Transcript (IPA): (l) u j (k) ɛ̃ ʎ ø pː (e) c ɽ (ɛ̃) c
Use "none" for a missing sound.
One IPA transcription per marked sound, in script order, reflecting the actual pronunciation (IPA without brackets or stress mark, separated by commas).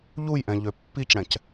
ʎ, ʔ, i, ɛ̃